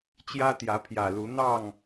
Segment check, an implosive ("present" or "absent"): absent